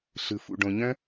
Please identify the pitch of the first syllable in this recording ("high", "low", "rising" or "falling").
low